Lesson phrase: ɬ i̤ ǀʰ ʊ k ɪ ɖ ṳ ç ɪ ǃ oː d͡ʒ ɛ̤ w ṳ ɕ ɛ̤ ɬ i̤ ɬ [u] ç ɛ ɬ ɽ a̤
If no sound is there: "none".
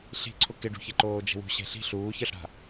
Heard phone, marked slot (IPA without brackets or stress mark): uː